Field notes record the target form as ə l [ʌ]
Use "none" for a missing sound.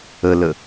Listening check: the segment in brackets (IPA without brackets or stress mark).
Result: ə